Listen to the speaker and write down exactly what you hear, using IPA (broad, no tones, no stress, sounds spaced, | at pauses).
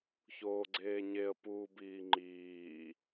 ç oː ɡ͡ǀ eː ɲ e ə̯ p uː b iː ŋ͡ǃ iː